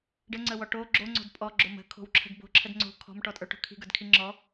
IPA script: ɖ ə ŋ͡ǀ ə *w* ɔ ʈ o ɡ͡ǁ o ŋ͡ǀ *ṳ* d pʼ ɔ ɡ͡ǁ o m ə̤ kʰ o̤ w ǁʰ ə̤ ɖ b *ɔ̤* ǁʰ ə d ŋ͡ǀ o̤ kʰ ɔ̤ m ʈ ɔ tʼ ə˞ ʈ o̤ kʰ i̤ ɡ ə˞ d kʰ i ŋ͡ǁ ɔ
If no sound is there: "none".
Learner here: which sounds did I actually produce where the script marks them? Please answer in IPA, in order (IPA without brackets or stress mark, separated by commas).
w, o̤, o̤